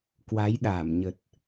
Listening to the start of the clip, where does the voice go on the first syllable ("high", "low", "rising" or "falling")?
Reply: rising